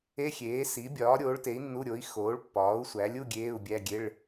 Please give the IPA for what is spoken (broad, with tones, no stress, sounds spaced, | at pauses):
e˧˥˧ xʲ eː˩˥ s i˩˥ bʲ ɒː˩˥ ɾʲ oː˩˥ ɭ t e˩˥ i̯ nː u˧˥˧ ɾʲ o˩˥ i̯ x oː˩˥ ɭ pː ɒː˩˥ u̯ sʷ æ˩˥ lʲ u˧˥˧ ɡʲ eː˧˥˧ u̯ bʲ æ˧˥˧ ɡʲ e˧˥˧ ɭ